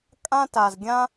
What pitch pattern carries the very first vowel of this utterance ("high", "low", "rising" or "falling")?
high